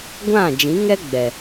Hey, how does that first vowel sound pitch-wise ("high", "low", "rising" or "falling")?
falling